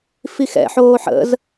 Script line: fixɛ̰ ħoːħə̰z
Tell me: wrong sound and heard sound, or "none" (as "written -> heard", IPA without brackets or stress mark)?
none